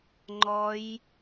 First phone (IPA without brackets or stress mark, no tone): ŋ͡ǃ